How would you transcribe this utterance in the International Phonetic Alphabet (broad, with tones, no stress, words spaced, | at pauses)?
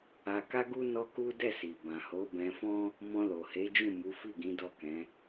a˧ka˦ɡu˦ nɔ˦ku˦ dɛ˦˨si˨ bã˨ho˨˦ bɛ̃˧fɔ̃˦ | mɔ̃˧lo˨he˨˦d͡ʒũ˦˨ mu˨˦fi˦˨ɡĩ˨˦ dɔ˦˨kɛ̃˨˦